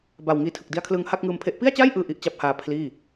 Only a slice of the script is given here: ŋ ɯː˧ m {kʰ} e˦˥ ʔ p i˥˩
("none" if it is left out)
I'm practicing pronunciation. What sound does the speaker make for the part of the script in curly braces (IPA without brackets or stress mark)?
pʰ